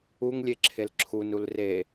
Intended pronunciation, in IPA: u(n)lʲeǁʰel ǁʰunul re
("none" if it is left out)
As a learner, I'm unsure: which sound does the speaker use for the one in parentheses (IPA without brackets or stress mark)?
ŋ